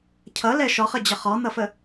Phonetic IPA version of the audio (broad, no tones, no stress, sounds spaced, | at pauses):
cʰ ʌ l ɛ ʃ ɔ χ ə d͡ʑ ʌ χ ɔ n̪ ʌ f ə